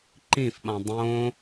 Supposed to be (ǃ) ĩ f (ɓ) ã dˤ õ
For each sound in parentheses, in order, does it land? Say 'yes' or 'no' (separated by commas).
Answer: yes, yes